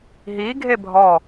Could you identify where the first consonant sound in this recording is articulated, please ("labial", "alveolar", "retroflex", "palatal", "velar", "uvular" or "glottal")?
glottal